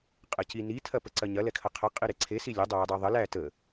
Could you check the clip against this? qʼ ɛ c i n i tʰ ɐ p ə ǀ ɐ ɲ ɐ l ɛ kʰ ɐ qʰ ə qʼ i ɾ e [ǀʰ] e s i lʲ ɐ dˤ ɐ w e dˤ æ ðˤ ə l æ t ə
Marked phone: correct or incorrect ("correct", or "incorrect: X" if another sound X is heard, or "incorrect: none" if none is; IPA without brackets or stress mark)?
correct